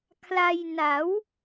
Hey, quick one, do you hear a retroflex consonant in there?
no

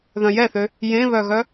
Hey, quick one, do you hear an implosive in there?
no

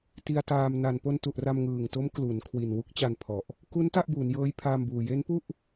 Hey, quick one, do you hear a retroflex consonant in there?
no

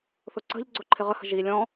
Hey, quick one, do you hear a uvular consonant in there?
yes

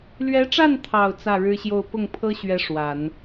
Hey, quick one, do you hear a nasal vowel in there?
no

